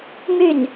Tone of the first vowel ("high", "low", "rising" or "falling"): falling